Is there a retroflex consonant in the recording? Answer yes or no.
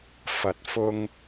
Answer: no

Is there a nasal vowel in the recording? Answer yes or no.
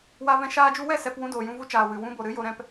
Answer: yes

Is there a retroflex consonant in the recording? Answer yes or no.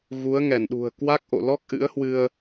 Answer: no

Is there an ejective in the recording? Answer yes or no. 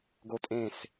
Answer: yes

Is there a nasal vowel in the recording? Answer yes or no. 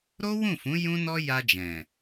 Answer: yes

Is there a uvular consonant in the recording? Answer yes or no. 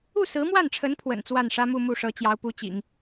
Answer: no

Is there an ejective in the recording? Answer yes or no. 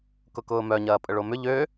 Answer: yes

